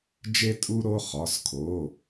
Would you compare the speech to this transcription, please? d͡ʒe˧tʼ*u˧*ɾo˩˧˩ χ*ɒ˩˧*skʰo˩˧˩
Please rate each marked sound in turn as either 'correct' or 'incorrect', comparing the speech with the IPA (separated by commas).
correct, incorrect